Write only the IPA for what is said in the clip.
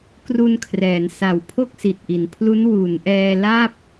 kru˧nkʰrɛː˩˦n sa˨˩w pʰo˥˩k̚si˨˩t̚ʔi˩˦npʰlu˦˥n wu˩˦nʔɛː˧la˥˩p̚

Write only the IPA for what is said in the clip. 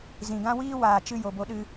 zĩ˨ɡã˦wiː˦ waː˨t͡ʃɨ˧ jo˨bo˧ɗɨ˧

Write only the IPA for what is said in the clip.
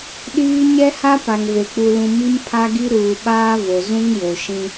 ɗiː˦ ɲɛ˦ha˦pa˨ŋve˨ k͡pu˨lũ˨ mi˦mpʰa˦ɡi˦ ɾuː˨ɓaː˦ vo˨zũ˦ŋjo˨ʃĩ˦

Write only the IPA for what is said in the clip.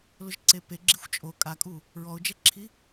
lʊʒǀepe ɡ͡ǁixʷt͡ʃʼo kʼakʼu | ɹɔʊ̯d͡ʒɛǁʰi

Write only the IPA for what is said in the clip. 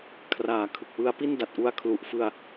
kʰraː˩˦kʰɯ˨˩k̚ wɯ˦˥a̯pi˥˩nda˨˩t̚ʔu˧a̯ kʰlu˨˩ʔfɯ˧a̯

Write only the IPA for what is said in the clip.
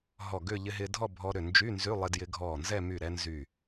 ɦɔ˧˩ɡʏ˥˧ ʎɪ˧ɦɪ˧dʱɔ˥˧ bʱɔ˧ɾʏ˧˩ nd͡ʒy˧˥˧nzy˧˥˧lˠɪ˧ djɪ˧ɡʱɔ˧˩nzɛ˥˧ my˧˩ɾɛ˧nzy˧˩

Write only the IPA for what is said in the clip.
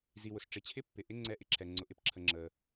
zi˩wʊ˩s ʈ͡ʂɪ˩t͡ɕʰɪ˧˥ pːɪ˩ʔɪ˧˥ ŋ͡ǀɛ˧˥ʔɪ˧˥ǁʰɛ˩ ŋ͡ǀʊ˩ʔɪ˧˥pǁʰə˩ ŋ͡ǁə˩

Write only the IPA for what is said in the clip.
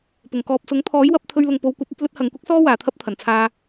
pʊ˨˩ŋkɔː˧p̚ sʊ˨˥ŋ t̪ʰɔː˨˥jwɐ˨˥p̚t̪ʰɵ˧ɥlʊ˨ŋ po˨˧w kʷɐ˨˥p̚ɐ˨˥t̚ lɵ˥t̚hɐ˨˧ŋ kʷɐ˥k̚sɔː˥ waː˨t̪ʰɐ˥p̚t̪ʰɐ˨˩nt͡sʰaː˧

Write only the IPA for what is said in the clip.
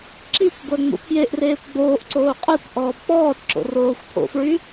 ǁikʷɡʷœ ŋ͡mṵpʰjeʔreːkʷ ɡ͡boːʔǀoː qʼœkʷ ʔɔːbk͡pɔːtǁo̰ roːxʷpʰo̰fɹy

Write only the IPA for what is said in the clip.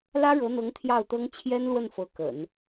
lä˥ɻɤ˧˥n̪ɤ˧˥ŋ t̪ʰjɑ˥˩ʊ̯t̪ɤ˥ŋ t͡ɕʰjɛ˥nlwə˥˩n fɤ˧˥kə̰˨˩˦n

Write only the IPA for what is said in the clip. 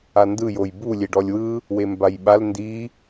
andɯjoj bulʲe ɖɔlʲwɯ | wembajɓal ndi

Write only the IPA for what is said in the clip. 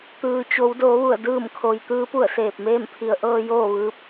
t̪ɯː˩t͡ɕo˩˧w doː˩˧ʋu˧˩ə̯ dɯː˧˩mkʰo˩j t̪ɯː˧˥pu˧˩ə̯seː˧˩p̚meː˥˨m pʰi˩˧ə̯ ʔɤː˧ joː˥˨ʋɯː˧˥p̚

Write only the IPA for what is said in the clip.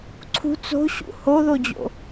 ǀʰṳ t͡so̤ɕṵ hoðod͡ʑo̰

